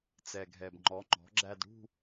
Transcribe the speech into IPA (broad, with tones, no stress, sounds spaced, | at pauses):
t͡s ɛ˨˩ ɡʱ ɛ˨˩ b ŋ͡ǃ ɔ˩˥ ŋ͡ǃ ɔ̤˩˥ ɡ͡ǁ æ˥˧ d ɽ ṳ˥˧